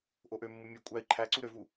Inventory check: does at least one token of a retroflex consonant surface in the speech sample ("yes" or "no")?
no